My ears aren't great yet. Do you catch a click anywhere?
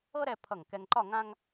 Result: yes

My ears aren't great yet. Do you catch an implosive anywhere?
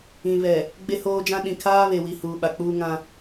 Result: yes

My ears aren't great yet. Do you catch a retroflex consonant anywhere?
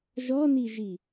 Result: no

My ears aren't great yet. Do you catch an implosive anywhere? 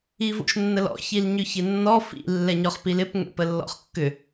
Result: no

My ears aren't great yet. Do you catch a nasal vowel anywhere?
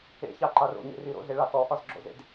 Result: no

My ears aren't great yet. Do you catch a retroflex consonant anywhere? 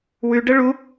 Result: yes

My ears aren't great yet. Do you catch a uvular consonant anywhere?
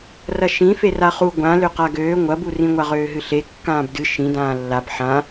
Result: yes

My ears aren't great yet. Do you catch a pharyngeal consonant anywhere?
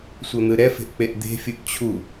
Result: no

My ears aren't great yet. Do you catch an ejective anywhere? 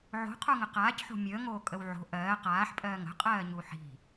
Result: yes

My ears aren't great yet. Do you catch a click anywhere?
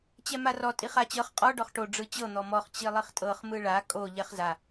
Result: no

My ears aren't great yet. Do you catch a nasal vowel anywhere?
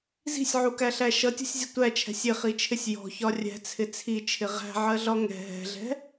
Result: no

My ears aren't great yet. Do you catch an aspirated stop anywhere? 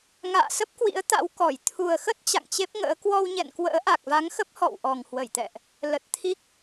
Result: yes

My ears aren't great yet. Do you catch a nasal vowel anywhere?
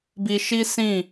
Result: yes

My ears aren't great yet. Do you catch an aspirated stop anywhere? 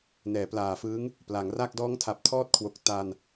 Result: yes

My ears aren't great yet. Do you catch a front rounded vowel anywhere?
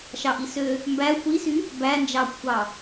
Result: yes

